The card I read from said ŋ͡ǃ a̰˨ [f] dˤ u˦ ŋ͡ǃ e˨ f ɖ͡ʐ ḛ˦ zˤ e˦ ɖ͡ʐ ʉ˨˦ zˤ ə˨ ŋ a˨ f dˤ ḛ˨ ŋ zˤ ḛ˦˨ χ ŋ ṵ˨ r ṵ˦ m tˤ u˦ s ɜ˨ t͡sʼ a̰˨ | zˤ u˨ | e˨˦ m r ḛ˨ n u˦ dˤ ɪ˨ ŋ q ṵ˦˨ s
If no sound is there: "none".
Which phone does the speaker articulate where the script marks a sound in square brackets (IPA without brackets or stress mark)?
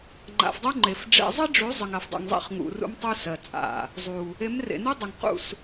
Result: f